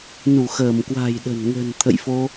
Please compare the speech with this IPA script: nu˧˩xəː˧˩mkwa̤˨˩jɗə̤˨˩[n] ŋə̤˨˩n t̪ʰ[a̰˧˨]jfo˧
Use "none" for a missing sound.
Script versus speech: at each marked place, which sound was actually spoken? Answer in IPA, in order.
n, ə̰˧˨

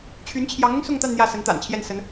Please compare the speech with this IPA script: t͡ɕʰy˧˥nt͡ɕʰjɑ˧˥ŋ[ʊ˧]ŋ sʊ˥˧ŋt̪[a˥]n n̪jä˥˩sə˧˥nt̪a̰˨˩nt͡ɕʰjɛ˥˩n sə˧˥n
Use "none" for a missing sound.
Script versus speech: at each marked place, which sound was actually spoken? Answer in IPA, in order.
ʊ˧, a˥˧

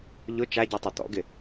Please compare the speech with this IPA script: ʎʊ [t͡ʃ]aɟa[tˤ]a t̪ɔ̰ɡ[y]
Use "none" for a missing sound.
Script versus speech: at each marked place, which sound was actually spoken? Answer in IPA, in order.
t͡ʃ, tˤ, ɪ

